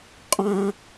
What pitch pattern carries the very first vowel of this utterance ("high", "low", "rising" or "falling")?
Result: high